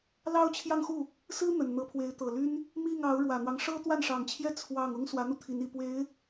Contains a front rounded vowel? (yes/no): yes